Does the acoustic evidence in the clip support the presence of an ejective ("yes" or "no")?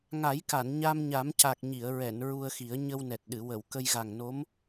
no